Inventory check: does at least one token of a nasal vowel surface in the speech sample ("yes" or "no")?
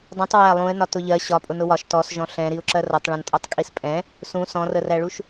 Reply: yes